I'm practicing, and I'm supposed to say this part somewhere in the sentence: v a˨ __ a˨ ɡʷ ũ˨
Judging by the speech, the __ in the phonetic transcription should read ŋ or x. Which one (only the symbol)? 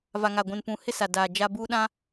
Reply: ŋ